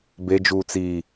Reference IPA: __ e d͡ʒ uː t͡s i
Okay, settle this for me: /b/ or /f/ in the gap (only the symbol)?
b